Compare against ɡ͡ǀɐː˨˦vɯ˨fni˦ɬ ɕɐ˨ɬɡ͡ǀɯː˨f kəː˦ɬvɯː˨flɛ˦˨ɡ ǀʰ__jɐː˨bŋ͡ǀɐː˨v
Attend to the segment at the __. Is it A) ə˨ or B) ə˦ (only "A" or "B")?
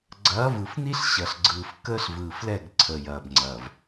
A